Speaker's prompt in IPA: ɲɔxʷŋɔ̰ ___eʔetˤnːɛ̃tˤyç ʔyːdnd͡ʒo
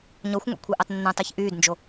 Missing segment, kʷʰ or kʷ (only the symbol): kʷʰ